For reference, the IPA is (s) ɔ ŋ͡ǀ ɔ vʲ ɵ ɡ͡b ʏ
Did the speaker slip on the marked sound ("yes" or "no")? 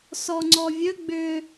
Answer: no